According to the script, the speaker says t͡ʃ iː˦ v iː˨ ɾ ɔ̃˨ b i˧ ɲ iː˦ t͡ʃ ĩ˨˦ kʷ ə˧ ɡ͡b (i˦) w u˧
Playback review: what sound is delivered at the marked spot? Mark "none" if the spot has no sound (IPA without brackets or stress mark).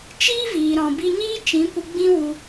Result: ĩ˦